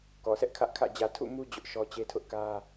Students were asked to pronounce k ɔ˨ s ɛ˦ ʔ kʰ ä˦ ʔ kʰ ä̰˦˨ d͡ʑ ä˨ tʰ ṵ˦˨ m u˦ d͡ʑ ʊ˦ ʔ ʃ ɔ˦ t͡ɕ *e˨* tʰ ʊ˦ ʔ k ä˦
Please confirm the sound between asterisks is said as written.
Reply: no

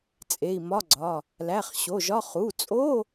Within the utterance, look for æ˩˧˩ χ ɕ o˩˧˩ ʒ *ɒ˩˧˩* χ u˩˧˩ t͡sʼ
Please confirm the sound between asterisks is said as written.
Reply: no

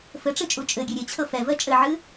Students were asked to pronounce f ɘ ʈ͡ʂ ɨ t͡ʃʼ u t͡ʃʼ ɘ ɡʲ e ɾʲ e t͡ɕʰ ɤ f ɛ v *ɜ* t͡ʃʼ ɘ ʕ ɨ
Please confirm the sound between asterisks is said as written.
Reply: yes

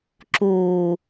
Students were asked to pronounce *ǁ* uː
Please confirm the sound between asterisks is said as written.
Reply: yes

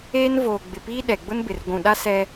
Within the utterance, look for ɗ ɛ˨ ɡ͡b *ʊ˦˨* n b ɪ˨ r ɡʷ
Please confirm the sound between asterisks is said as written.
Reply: no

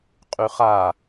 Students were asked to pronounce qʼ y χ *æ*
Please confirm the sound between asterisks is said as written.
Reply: no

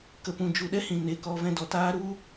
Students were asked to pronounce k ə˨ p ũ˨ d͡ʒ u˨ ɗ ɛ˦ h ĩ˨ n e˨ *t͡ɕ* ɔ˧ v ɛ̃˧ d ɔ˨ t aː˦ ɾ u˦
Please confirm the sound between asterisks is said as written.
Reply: no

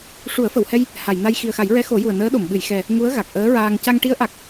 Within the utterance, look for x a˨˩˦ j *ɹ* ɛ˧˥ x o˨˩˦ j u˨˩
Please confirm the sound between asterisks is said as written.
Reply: yes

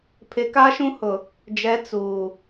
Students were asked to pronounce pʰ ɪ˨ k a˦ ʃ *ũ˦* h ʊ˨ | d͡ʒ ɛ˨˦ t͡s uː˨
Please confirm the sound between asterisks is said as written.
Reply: yes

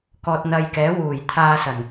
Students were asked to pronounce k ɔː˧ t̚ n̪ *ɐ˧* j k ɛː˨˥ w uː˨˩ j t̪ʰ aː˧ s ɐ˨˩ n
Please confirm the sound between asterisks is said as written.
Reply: yes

